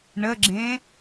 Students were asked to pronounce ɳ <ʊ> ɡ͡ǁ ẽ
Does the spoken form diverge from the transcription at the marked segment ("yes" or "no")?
yes